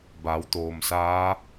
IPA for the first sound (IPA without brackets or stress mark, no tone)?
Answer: b